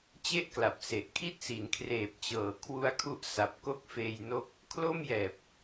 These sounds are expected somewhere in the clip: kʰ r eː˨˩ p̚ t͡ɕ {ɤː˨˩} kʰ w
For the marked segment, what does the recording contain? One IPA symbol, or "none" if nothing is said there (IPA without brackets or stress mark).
ɤː˨˩